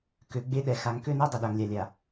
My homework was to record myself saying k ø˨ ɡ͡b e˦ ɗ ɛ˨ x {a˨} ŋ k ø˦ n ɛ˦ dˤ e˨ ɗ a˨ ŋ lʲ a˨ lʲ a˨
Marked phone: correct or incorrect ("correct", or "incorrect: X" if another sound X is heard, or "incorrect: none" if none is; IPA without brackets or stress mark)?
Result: correct